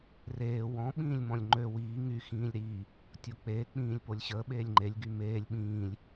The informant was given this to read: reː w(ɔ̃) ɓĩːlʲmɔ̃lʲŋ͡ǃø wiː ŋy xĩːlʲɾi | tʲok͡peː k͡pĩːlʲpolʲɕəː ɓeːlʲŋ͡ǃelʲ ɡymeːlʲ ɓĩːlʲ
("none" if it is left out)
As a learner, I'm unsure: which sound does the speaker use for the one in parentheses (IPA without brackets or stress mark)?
ɔ̃